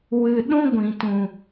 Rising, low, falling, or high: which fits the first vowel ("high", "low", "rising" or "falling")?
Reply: high